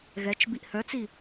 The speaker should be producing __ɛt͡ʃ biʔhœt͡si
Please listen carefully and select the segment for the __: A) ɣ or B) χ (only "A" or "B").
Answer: A